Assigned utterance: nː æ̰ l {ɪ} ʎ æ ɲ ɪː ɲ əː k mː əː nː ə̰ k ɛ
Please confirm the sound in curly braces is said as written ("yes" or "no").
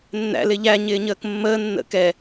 yes